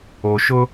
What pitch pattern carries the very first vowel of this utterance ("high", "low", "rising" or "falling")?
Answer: low